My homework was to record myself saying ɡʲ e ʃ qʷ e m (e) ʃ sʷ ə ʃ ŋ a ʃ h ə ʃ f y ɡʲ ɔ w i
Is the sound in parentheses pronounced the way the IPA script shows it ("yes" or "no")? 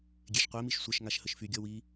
no